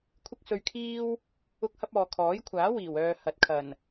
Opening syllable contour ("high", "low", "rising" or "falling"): high